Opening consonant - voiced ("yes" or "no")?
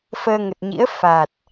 no